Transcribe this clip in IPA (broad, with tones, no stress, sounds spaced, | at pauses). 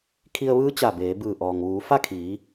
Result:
kʰ i˧ ə̯ ʋ ɯː˧˥ t͡ɕ a˧˩ b eː˩˧ b ɯː˧˩ ʔ ɔː˩ ŋ ʋ uː˩˧ f a˥˨ kʰ iː˩˧